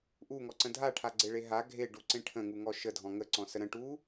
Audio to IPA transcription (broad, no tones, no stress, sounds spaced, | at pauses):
ʔ u ŋ ɔ ǀ ə̃ dʱ a ʈʰ a ɡ͡ǀ e ɭ e ɦ a ɡʱ e ɖ u ǀ ẽ ʈʰ ə̃ ŋ u ŋ ɔ ʃ ə dʱ ɔ̃ ŋ ə ǀ ɔ̃ s ə ɾ ə̃ ʈ u